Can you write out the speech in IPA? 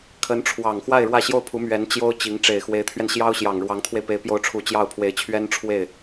kʰə˧˥nʈ͡ʂʰwɑ˨˩ŋxwa˥˧ɪ̯ ɻwä˥˧ɕjo˥˩ʊ̯pʰu˧˥mɥɛ˧˥n t͡ɕjo˥ʊ̯t͡ɕi˧˥ŋ ʈ͡ʂe˨˩ɪ̯xwe˧˥ɪ̯t̪ʰɥɛ˧nɕjɑ˥ʊ̯ ɕjɑ˨˩ŋɻwɑ˧˥ŋt̪ʰwe˧ɪ̯pe˧˥ɪ̯ pjo˧˥ʊ̯ʈ͡ʂʰu˨˩ t͡ɕjɑ˥˩ʊ̯pʰwe˧˥ɪ̯t͡ɕʰɥɛ˥n ʈ͡ʂʰwe˥˩ɪ̯

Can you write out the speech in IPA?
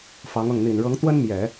fɑ˧˥ŋɤ˥˩ŋ n̪i˨˩nɻɤ˧˥ŋ t̪wə˥nmjɛ˨˩˦

